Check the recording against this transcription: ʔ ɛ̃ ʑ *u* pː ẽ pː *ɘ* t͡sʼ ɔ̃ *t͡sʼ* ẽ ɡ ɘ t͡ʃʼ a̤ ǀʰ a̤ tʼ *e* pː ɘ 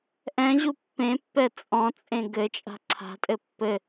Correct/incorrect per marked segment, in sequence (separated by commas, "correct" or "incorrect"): correct, incorrect, correct, incorrect